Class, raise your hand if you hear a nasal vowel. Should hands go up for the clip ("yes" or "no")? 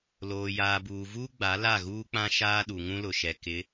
yes